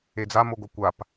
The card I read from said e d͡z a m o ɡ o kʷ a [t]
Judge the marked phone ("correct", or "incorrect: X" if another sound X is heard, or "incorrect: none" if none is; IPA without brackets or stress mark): incorrect: p